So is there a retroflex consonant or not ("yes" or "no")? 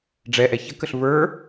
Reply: yes